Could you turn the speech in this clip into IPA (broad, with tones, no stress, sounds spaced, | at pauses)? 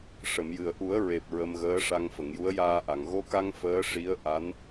ʂ ə˨˩˨ m j ɨ˨˩ ə̯ ʔ u˨˩˦ ə̯ ɹ e˨˩ p̚ ɹ ə˧ m ɣ əː˧˥ ʂ a˧ ŋ f ə˨˩˨ ŋ j u˧˥ ə̯ j aː˧ ʔ a˨˩˨ ŋ ɣ o˧ k a˧ ŋ f əː˧˥ ʂ i˧˥ ə̯ ʔ a˧˥ n